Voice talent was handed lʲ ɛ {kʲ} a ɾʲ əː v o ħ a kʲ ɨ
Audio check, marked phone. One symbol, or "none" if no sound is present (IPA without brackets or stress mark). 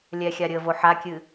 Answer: xʲ